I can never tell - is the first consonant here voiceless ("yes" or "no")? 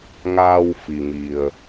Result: no